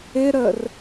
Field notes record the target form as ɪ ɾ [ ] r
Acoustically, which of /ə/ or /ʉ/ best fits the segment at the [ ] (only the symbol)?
ə